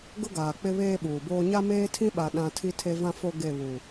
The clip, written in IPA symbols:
ɡ ʊ˦ ɡ aː˨ k͡p ɪ˦ β eː˦ ɓ uː˨ b oː˦ ɲ a˦ m eː˦ tʰ ĩ˦ ɓ a˨ ɗ ã˦ tʰ i˦ tʰ e˦ v ã˦ f o˦ ɡ e˦˨ β u˨

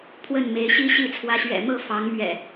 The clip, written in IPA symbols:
pʰ w ə˥˨ n m e˨˦ ɪ̯ ɕ i˦ ɕ i˥˨ t͡sʰ w ä˨˦ ɕ ɥ ɛ̰˨˩ m ɤ˥˨ f ɑ˨˦ ŋ m ɥ ɛ̰˨˩

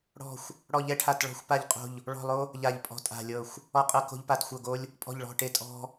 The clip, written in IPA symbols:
ɽ ɔ̤˦˨ xʷ | ɽ ɔ˦˨ ʎ ɛ˦ ʈʰ a˦˨ t ɭ ɔ̤˦ xʷ p a˦˨ ʎ qʼ o̤˦˨ ʎ | ɭ ɔ̤˦˨ lˠ o˦ | ʎ a˦˨ ʎ pʼ ɔ̤˦ tʼ a̤˦˨ lʲ ɤ˦˨ xʷ | ɔ˦ qʼ ɤ˦ k o̤˦ ʎ p a˦˨ t xʷ ɤ˦˨ ɡ o˦ lʲ | pʼ ɔ̤˦˨ ʎ ɭ ɔ̤˦˨ ʈ e˦ tʼ ɔ̤˦

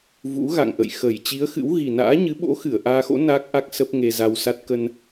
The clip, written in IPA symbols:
v ṵ˧˥ ɣ a̰˧˨ ŋ ʔ ə̰˧˨ j x ə˧˩ j t͡ɕ i˨˦ ə̯ x ɨ̰˧˥ w ɣ i˨˩ n a̰ː˧˥ ɲ ɨ˨˦ ɓ o̰˧˥ x ɨ˧˩ ə̯ ʔ aː˧ x o̰˧˥ n a˦˥ k̚ ʔ a˦˥ k̚ s ə˦˥ p̚ ŋ e˧ z a˧ w s a˦˥ t̚ k ə˧ n

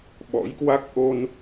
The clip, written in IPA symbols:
ɓ ɔ̰˧˥ j k w a˦˥ k̚ ʔ o˧ n

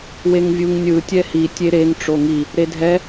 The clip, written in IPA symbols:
w e ŋ vʲ u ŋ nʲ ɯ tʲ ɛ h i tʲ e ɾ e ŋ ʈ͡ʂ o ŋ i | ɾ e dʱ ɛ

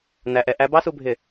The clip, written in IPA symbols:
n æ˧ ʔ ɛ˧ ʔ æ˦˥ b ɑ˦˥ s u˧ bʱ ɪ˧˩

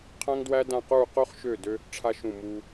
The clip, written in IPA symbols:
qʰ æ̃˧ ŋ d w æ˧ d ã˧˩ q uː˧˩ q o˧ χ ʃ ø˧˩ d ø˧ | ʈ͡ʂʰ a˧ ʃ ũ˧˩ m uː˧

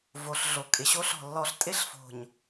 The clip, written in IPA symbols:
v o˨ ɬ ɮ o˨ kʼ ɪ˨ ɕ o˦ ɬ ɔ̤˨ lː ɔ˨ ɬ tʼ ɪ˦ ɬ f o̤˨ ɲ

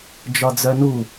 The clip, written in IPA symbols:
d͡ʒ ɒ d͡z œ n u

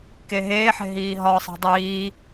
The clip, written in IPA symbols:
k e ɦ eː ħ e̤ ɦ iː ɦ ɒ sˤ i̤ dˤ iː

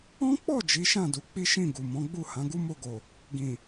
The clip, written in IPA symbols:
ɔ̃˦ k͡p ɔ˦˨ d͡ʒ i˨˦ ʃ ã˦˨ d u˧ k͡p i˦ ʃ ĩ˦˨ ɡ u˨ m ɔ̃˨˦ ɡ͡b u˦˨ h ã˨˦ ɡ u˦ m o˧ ɡ o˨ | ɡ ĩ˨

